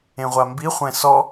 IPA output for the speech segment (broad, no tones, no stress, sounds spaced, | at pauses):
ẽ ʁʷ a m b i χʷ ɛ̃ s ɔ